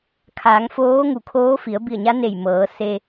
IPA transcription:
kʰ aː˩˧ ŋ f oː˧˥ ŋ u˧˩ kʰ oː˧˥ f i˩˧ ə̯ b i˧˩ ə̯ ɲ a˧˥ n e˧˩ j m ɤː˩˧ s e˧

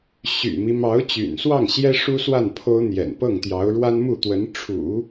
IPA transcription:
ɕ y̰˨˩ m i˦ m ɑ˧˥ ʊ̯ t͡ɕ y̰˨˩ n s w ɑ˥˩ ŋ ɕ j ɛ˥ ʂ u˥ s w a˥˩ n pʰ o˥ ʊ̯ n̪ j ɛ̰˨˩ n p ɤ˥˩ ŋ t̪ j ɑ˧˥ ʊ̯ ɻ w a˥ n m u˥˩ t̪ w ə˧˥ n ʈ͡ʂʰ ṵ˨˩˦

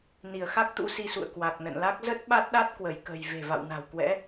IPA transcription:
n i˧˩ ə̯ x a˦˥ k̚ t̪ ṵ˧˥ s i˧ s ṵ˧˨ ə̯ k w a˨˩ k̚ n ə̰˧˨ n l a˦˥ k̚ z ə˦˥ t̚ ɓ a˦˥ t̚ ɗ a˦˥ t̚ k w ə˧˩ j k ə̤˨˩ j v e̤˨˩ v a̰˧˨ w n a̤˨˩ w k w ɛ̰˧˥

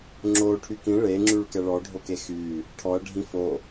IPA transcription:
ŋ͡ǁ o ʈʰ y k ĩ ɭ e ŋ͡ǁ y ɭ k ɛ ɭ ɔ ɖʱ o k e x y | ʈʰ ɔ ɐ̯ ɖʱ ĩ f o

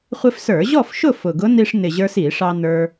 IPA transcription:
χʷ ɪ˧ f s ə˞˧˩˧ ʑ ɔ˥˨ f ʃ ʊ˥˨ f ʊ˨˩ ɡ ʊ˧˥ n i˧ ʂ n ɪ˨˩ ʑ ə˞˧ s i˧˩˧ ʂ ɑ˧ n ə˞˧

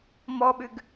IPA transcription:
m ɔ ɓ ʉ ɡ

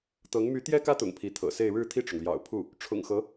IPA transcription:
t̪ ɤ˧˥ ŋ m y˧˥ t̪ j ɛ˥ k ä˥ t̪ ʊ̰˨˩ ŋ pʰ i˧˥ t̪ʰ ɤ̰˨˩ s e˥˧ ɪ̯ ɻ ɻ̩˥˧ t̪ʰ i˥˩ ʈ͡ʂ ʊ˩ ŋ l j ɑ̰˨˩ ʊ̯ pʰ u˥˩ | ʈ͡ʂʰ ʊ̰˨˩ ŋ x ɤ˧˥

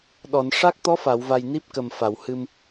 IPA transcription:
ɗ ɔ˨˩˨ n ʂ a˦˥ k̚ t̪ ɔ˧˥ f a˨˩˨ w v a˨˩ j n i˦˥ p̚ k ə˨˩ m f a˨˩˨ w h ɨ˧ m

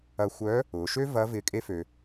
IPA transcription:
ɐ˧ xʷ œː˧˥ | ʊː˩˧ ʃ ø˥ v ɐ˧˥ v ɪː˧˥ kʼ e˥ f ø˧

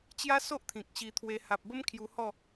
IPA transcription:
t͡ɕ j a˦ s o˦ ʔ t̪ʰ ĩ˨ k̚ ɕ i˧ t̪ʰ w e˧ h a˨ p̚ b ə˦ m kʰ j u˧ h ɔ˥˧

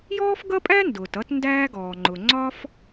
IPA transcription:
j ɔː˥ f ɡ ʌ˥ pʼ æ˥ n d ʊː˩ t ʌ˥ t n d æː˥ ɡ ɔː˩ ŋ͡ǃ ʊ˩ ŋ͡ǀ ɒ˥ f

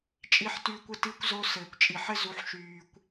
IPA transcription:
t͡ʃʼ i˧ ħ t yː˧ kʷ ɘ˧ t iː˧ kʷ z o˧ s ɘː˨ kʷ t͡ʃʼ i˨ ħ ɘ˦ z u˧ ħ ʃ yː˧ kʷ

